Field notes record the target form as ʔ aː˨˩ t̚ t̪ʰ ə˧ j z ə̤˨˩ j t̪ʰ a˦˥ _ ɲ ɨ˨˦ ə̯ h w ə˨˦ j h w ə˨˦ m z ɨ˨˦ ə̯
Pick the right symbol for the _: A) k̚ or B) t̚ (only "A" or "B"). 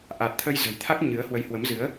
A